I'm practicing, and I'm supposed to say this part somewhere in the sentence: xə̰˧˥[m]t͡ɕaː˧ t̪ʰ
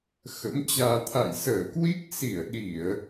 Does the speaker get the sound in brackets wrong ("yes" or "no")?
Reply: no